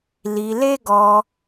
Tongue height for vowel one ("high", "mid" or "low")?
high